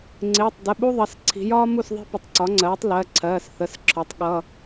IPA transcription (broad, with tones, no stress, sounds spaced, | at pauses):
ŋ͡ǀ ɪː˩˧˩ tˤ d ə˩˧˩ ɓ u˥ ðˤ ʌ˩˧ s ǀʰ i̤˩˧ j ɒː˥ m u˥˩ s ðˤ i̤˥ p ə˩˧ tˤ ǀ ɒ˩˥ ŋ͡ǀ ɜː˩˥ tˤ l ɜ˩˧˩ ǀʰ ɜː˩˧˩ s θ ə˩˧˩ s ǁʰ ɔ˩˥ tˤ ɠ ʌ˩˧˩